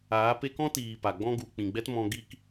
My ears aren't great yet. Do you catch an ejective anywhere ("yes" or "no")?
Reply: no